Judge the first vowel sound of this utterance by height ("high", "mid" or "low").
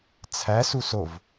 low